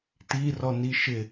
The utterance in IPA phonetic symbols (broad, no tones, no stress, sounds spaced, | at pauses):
t i r ɔ n i ʃ ɪ